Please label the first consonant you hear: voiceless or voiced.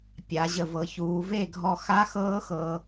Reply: voiceless